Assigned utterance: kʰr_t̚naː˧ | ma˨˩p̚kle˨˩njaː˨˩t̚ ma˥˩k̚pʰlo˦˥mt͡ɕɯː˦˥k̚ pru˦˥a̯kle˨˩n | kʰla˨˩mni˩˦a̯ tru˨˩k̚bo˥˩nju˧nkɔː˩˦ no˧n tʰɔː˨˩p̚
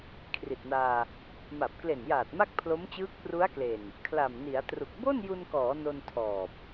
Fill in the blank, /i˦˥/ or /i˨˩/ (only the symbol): i˨˩